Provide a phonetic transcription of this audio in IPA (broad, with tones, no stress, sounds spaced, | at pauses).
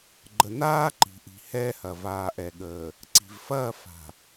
ɡ͡ǃ ə˨ n aː˦ ǃ i̤˨ ʔ i̤˨ h ɛː˦ h ɐ˨ v aː˨ ʔ ɛ˨ ɠ əː˨ | ǀ i̤˨ v f ɐː˦˨ f a̤˨